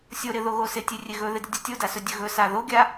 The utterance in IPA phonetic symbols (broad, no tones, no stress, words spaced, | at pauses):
sʲoɾɪðoɣo sɪtʲerʲe ɣɵðɪdɪdʲʌ tʲodasɵdʲɵ ɣɵsa ðoɡʲa